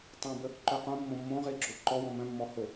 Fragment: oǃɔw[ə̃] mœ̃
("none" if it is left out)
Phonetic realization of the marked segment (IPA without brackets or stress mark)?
ɔ̃